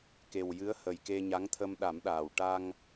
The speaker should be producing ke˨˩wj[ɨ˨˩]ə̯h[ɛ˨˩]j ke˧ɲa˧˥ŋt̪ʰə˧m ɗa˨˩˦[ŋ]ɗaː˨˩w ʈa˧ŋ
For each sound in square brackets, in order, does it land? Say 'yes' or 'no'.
no, no, no

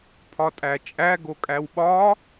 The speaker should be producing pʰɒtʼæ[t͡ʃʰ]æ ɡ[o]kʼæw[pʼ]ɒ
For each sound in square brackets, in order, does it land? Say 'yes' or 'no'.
no, yes, no

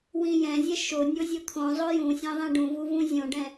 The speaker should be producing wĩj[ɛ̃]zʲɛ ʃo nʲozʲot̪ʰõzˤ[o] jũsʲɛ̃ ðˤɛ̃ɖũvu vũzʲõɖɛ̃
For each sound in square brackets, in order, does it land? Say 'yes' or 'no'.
yes, yes

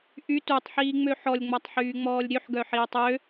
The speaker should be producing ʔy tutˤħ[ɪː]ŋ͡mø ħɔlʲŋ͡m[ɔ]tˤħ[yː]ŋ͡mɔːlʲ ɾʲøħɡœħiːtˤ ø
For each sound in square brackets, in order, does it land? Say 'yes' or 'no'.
no, yes, yes

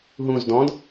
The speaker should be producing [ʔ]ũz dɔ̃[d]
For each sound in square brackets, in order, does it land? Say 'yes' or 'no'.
no, yes

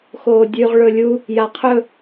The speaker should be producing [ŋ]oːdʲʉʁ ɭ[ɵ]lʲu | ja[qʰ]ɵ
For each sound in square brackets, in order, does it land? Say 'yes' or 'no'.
no, yes, yes

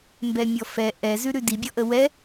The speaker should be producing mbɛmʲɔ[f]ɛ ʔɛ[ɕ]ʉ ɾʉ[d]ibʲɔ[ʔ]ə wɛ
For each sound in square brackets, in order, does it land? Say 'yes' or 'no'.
yes, no, yes, yes

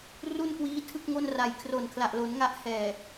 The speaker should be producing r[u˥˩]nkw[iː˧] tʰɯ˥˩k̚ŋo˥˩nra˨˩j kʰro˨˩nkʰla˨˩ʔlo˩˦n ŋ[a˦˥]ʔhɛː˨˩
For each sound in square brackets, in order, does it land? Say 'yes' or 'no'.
yes, no, yes

